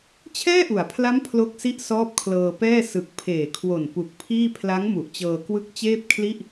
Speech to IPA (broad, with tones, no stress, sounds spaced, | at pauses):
t͡ɕʰ ɛː˥˩ ʔ u˩˦ a̯ pʰ l a˦˥ m pʰ l o˦˥ k̚ s i˥˩ ʔ s ɔː˦˥ p̚ kʰ l ɤː˧ p ɛː˥˩ s ɯ˨˩ k̚ pʰ eː˨˩ kʰ w o˨˩ n p u˨˩ k̚ pʰ iː˥˩ pʰ l a˦˥ ŋ m u˨˩ ʔ t͡ɕ ɤː˧ k w ɯ˦˥ k̚ t͡ɕ eː˥˩ p̚ kʰ l i˥˩ ʔ